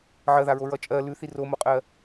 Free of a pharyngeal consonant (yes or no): no